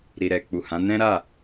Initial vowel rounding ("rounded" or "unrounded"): unrounded